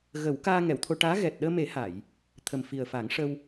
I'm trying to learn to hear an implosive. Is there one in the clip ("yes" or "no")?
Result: yes